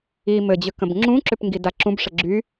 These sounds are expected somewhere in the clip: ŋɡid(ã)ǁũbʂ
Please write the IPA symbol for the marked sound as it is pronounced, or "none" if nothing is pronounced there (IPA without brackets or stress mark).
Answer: a